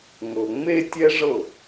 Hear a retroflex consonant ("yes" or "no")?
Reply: yes